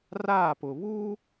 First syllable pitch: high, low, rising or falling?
falling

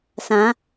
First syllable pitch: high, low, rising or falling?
rising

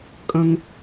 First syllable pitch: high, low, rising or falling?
high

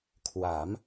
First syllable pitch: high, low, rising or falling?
rising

